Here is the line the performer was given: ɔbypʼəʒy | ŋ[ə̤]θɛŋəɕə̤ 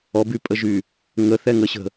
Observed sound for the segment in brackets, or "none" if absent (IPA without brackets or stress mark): ə